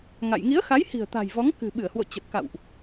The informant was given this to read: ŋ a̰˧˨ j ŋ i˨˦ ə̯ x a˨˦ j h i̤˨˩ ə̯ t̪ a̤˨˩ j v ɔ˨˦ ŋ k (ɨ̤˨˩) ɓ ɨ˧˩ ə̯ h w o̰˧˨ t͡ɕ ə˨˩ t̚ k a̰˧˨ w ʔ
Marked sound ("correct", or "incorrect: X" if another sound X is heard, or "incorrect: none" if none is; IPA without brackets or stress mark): correct